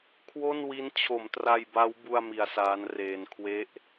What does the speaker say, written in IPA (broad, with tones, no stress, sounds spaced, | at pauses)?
kʰ w o˥˩ n w i˦˥ n t͡ɕʰ o˩˦ m t r a˧ j b a˦˥ w b u˥˩ a̯ m i˧ a̯ s aː˦˥ n r eː˧ n kʰ w e˦˥ ʔ